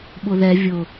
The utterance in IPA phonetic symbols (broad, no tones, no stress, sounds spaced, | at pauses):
ɓ ʊ ð ɛ vʲ ʊ